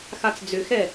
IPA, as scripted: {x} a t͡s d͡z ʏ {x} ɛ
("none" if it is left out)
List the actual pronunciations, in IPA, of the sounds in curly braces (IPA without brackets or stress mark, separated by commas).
x, x